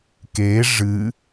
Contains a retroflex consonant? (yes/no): yes